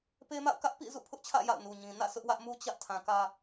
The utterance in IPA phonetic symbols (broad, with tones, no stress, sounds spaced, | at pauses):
p e˦ m a̰˦˨ ʊ̯ k ä˦ ʔ p ḭ˦˨ z ṵ˦˨ pʰ ʊ˦ ʔ t͡ɕʰ ä̰˦˨ j a̰˦˨ ʊ̯ n u˨ ɲ ĩ˨ n ä̰˦˨ s ʊ˦ ʔ w ä˦ ʔ m u˦ t͡ɕ ä˦ ʔ tʰ ã˨ k ä˦